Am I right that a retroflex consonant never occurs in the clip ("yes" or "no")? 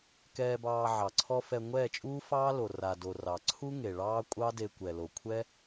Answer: no